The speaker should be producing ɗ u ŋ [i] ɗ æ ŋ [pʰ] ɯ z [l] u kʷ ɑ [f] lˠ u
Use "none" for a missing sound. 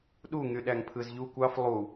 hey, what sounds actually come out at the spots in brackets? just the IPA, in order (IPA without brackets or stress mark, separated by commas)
y, pʰ, ʎ, f